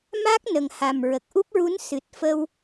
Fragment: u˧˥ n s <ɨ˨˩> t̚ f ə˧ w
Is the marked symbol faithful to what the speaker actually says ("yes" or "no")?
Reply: yes